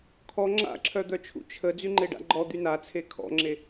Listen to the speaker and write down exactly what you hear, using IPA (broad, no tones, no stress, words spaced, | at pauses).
kʰɔ ŋ͡ǁa̰ǁʰœd̪œt͡ʃʰṵ t͡ʃʰə d͡zyŋ͡ǃeɖa̰ɡ͡ǃɔ d̪ynat͡sʰe kʰɔ̰ŋ͡ǁe